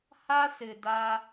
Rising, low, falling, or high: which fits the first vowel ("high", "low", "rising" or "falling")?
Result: high